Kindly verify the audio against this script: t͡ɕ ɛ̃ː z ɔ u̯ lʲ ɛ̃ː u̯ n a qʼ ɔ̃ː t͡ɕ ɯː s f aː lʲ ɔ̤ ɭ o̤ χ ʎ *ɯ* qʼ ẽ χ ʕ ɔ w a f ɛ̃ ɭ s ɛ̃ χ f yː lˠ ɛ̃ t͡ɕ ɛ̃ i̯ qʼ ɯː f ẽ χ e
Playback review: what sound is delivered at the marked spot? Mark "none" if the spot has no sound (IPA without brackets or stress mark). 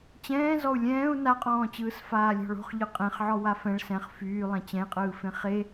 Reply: ɯ